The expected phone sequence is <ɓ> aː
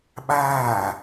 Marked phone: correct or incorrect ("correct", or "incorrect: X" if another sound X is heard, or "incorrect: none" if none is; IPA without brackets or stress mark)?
correct